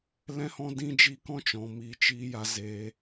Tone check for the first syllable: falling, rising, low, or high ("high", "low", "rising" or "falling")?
high